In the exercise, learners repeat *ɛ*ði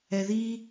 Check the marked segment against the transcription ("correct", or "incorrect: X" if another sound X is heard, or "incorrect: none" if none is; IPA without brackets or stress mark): correct